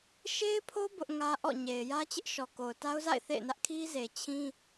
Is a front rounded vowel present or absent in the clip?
absent